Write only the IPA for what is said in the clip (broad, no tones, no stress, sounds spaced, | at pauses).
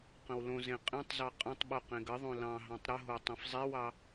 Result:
q ə̃ w l õ z ẽ qʼ ẽ tˤ z ɑ qʼ ə̃ tˤ ɓ o q ẽ ɡ ə ðˤ õ l ɑ̃ ɦ ɑ̃ tˤ ɾ ə ɦ o tˤ ẽ f zˤ e w ɑ